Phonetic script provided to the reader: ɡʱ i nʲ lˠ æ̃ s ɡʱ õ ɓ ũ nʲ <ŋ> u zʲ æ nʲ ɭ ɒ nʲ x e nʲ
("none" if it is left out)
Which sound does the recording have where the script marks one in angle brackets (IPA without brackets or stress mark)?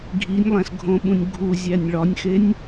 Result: ɡʱ